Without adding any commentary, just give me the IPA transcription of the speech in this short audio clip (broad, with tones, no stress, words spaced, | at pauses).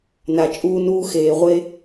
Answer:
na˨t͡ʃʼuː˧nuː˧ xeː˨ʁʷe˧